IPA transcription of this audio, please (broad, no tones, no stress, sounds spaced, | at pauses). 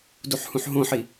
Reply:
d u ħ h ũ ħ ɦ õ ħ i